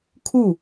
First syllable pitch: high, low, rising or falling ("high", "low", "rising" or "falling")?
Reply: falling